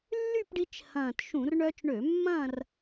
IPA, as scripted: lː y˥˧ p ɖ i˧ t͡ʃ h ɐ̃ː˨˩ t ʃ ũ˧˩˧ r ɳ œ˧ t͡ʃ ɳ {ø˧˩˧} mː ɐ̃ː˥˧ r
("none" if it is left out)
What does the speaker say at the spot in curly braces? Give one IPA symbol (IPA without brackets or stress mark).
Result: ø˧˩˧